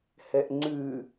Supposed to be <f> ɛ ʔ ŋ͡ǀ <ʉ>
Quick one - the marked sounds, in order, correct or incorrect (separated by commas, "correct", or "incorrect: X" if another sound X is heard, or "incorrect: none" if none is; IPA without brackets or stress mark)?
incorrect: h, correct